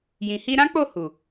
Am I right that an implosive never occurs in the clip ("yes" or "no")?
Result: yes